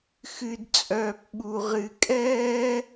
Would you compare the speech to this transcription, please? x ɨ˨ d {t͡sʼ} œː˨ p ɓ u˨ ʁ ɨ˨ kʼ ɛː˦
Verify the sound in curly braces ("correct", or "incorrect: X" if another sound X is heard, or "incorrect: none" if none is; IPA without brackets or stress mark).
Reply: correct